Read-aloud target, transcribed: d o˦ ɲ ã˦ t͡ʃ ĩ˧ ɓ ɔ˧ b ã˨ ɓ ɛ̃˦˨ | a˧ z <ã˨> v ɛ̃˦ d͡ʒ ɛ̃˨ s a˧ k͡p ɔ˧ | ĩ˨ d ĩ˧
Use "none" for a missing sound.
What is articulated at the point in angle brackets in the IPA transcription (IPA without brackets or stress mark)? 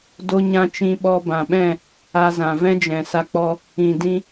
ã˨